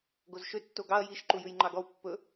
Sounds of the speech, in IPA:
ɡozʃø tːoɡɑɐ̯ jiʃ ǃujʉjŋ͡ǃɑɡɔw pːɵ

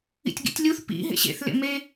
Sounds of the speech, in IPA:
ḭtʲɡḭtʲlʲuθ pḭ ɦḛɕḛθ lḛme

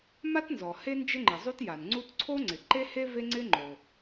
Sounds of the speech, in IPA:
ma˥tnzɔ˩ he˥ nd͡ʒɪ˥ŋ͡ǃɪ˩ zˤu˥tja˩nŋ͡ǀu˥t ǀʰo˥ŋ͡ǀɪ˩ǃe˥he˥ ve˥ŋ͡ǀɪ˥ ŋ͡ǃo˩

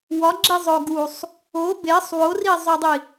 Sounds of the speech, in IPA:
wɒɡ͡ǁizˤo ɡusˤ | o besˤ worizˤodˤi

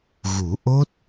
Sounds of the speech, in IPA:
ɣu˨˩˦ʔo˦˥t̚

